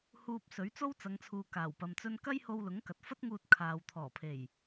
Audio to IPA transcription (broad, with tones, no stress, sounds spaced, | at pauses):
h uː˧ p̚ s ɵ˨˥ ɥ t͡s o˥ w t͡s ɐ˨˧ ŋ t͡sʰ uː˨ k aː˨˩ w p ɐ˨ m t͡s ɵ˥ n k ɐ˥ j h o˧ w l ʊ˨˥ ŋ k ɐ˨ t̚ f ɐ˥ t̚ ŋ uː˧ t̚ kʰ aː˨ w t̪ʰ ɔː˨˩ pʰ e˨˩ j